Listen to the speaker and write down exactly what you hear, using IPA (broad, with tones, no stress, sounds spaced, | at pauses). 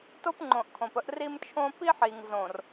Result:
t o˦ p ŋ͡ǃ õ˨ ʔ kʰ õ˨ p ə˦ ʔ r i˦ m t͡ʃʰ õ˦ p i˦ ħ i˨ ŋ z õ˨ r